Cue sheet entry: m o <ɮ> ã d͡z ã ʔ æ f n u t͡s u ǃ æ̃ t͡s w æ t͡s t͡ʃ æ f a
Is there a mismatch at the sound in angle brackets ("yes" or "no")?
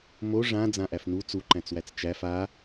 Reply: yes